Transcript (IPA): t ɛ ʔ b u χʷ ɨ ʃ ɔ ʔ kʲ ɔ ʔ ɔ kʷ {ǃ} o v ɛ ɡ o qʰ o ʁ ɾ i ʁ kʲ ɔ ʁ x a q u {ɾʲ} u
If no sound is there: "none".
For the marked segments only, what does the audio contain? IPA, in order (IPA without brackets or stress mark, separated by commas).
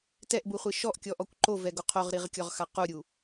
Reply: ǃ, ɾʲ